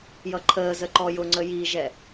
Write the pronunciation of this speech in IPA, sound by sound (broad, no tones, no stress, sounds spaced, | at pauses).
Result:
j ʌ ǃʰ əː z ə ǃ ɔ j ʊ ŋ͡ǀ ə j i ʒ ɛ